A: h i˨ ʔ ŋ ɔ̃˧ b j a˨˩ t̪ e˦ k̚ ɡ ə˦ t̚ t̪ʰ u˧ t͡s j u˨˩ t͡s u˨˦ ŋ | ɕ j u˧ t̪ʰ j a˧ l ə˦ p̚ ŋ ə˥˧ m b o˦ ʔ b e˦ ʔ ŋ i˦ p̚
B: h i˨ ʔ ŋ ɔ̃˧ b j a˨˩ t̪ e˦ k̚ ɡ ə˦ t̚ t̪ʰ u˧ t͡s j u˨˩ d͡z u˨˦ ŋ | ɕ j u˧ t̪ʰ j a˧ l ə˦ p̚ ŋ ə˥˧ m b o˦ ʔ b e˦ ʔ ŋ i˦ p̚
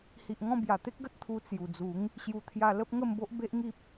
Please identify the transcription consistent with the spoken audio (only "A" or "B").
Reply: B